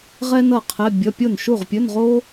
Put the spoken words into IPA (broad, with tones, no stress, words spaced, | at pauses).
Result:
ʁɛ˥nʌ˥˩qʰɛ˧˥˧bʲʌ˧˥˧ pʲo˥˩nʃu˥˩ʁpʲɵ˧˥˧nʁo˥